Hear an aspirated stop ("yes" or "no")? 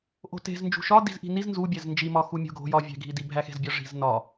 no